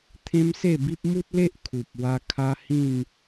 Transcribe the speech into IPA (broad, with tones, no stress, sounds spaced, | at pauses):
t̪ʰ ẽ˦ m s e˥˧ b i˦ p̚ m u˦ t̚ l e˦ ʔ kʰ u˨ p̚ w a˧ kʰ a˦ h ĩ˥˧ n